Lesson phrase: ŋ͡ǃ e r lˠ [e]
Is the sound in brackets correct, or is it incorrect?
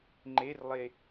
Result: correct